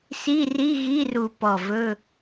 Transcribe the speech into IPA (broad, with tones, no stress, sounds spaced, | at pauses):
s i˧˥˧ r i˧˥˧ ɣ i˧˥˧ r u˧˩ p ɔ˧˩ v ɵ˧˥˧